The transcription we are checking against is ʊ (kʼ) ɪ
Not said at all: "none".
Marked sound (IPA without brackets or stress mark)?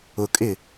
kʼ